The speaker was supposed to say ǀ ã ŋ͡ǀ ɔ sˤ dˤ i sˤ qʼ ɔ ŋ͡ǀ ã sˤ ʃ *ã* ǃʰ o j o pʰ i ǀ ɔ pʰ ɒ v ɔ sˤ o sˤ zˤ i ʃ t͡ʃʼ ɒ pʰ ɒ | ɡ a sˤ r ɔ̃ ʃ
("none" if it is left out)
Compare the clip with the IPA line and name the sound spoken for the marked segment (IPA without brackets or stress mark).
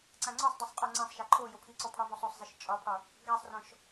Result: a